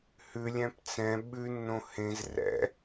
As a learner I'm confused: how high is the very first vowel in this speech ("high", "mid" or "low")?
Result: high